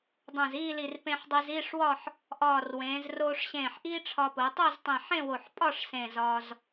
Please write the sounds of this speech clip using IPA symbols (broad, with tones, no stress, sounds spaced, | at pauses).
dˤ ũ˧˩ z iː˥˧ l i˧˩ r p ẽ˧ ħ dˤ e˧ z iː˥˧ ʂ w ɒ˥˧ ħ | ʔ ɒː˧˩ r w ẽː˩˧ z r oː˧ ʂ ɕ ẽː˧˩ ħ ʔ iː˥ ʈ͡ʂʰ ɒ˧ p o˩˧ tˤ o˥˧ z tˤ ẽ˧˩ ħ ẽ˥˧ w o˧˩ ħ pʼ ɒ˥˧ ʂ s ẽː˧˩ z ɒː˧ z